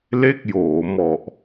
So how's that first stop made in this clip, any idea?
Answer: plain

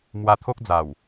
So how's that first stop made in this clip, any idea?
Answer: aspirated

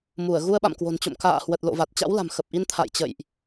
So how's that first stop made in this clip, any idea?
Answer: implosive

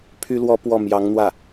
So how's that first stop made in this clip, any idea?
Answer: aspirated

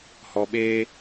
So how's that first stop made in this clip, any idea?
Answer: implosive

